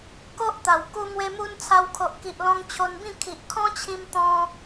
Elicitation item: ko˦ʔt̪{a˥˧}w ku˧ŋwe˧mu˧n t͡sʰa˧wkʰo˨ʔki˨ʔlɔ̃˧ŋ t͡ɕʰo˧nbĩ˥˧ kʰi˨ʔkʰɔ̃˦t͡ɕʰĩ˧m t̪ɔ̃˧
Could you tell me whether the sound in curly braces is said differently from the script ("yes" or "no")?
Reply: yes